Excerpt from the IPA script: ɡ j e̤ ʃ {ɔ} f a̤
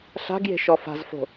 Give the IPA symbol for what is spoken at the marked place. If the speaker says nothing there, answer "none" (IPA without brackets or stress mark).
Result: ɔ